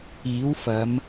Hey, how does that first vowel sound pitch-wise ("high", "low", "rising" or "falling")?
rising